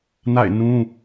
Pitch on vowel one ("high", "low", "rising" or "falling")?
falling